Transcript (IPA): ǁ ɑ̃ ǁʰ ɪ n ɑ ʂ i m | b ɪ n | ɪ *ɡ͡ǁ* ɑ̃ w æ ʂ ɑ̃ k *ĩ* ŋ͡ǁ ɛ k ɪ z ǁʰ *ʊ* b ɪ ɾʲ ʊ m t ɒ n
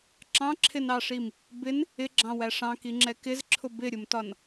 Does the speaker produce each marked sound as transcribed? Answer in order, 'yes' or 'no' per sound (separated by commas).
yes, no, yes